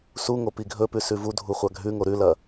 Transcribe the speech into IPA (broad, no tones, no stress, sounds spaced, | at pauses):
s u ŋ o p i ɡʱ ɵ p ʉ s ʉ v u dʱ u χʷ a ɡʱ ʉ ŋ o ɾ ʉ l ɐ